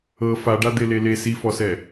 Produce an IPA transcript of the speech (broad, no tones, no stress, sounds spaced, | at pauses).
ɤ f a ɖ a d̪ e l e l e s i f ɔ s ɛ